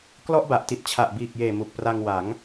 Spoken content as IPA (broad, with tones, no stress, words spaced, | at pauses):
klɔ˥˩ʔba˨˩ʔti˨˩t̚ t͡ɕʰa˨˩ʔbiː˨˩k̚jeː˨˩ mu˨˩k̚pra˧ŋ wa˩˦ŋ